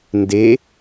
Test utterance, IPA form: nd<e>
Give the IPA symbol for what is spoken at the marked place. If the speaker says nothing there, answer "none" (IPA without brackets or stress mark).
e